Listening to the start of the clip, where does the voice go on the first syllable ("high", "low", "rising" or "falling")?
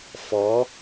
rising